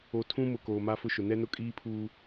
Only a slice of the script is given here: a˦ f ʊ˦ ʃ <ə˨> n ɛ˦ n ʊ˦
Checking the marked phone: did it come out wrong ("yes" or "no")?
yes